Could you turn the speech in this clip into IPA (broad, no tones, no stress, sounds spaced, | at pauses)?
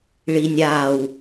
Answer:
ɭ iː nʲ aː w